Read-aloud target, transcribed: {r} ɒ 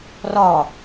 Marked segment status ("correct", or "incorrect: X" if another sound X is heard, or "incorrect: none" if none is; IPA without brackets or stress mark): correct